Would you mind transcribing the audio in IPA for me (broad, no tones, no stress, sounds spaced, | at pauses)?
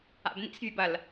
a̰ b n ḭ s vʲ ɨ b ɐ l